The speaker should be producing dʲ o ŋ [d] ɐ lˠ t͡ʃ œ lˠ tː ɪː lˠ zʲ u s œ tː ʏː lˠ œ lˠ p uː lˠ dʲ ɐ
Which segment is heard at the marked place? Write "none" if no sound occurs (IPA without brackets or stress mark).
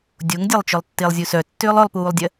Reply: dʲ